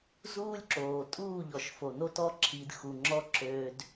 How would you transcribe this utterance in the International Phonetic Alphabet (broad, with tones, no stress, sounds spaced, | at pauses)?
z uː˦ lʲ ǁ oː˨ tʼ uː˦˨ ʎ ɔ˨ ʃ f o˨ n o˧ t ɔ˧ ǁʰ i˨ d x u˨ ŋ͡ǁ ɔ˧ ǁ øː˧ d